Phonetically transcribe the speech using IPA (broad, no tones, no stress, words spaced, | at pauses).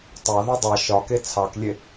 tˤɑðe dˤɑ ʃɒke t͡sʰɑklʲe